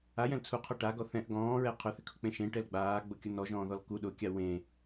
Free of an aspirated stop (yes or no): no